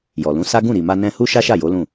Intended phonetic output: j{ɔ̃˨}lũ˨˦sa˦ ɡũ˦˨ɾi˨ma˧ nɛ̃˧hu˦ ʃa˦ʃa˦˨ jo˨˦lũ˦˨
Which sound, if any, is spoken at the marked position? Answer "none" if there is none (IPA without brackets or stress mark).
ɔ˨